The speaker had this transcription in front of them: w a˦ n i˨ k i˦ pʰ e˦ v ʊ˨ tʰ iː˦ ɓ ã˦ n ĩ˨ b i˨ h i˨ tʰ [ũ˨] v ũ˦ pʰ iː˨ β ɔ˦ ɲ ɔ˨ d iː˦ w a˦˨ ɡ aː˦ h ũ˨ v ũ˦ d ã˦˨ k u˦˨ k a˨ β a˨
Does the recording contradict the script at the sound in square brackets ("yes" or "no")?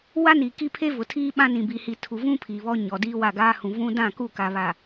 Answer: yes